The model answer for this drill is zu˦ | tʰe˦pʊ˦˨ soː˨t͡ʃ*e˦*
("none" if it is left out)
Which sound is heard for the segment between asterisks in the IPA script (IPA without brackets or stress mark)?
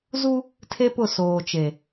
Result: e˨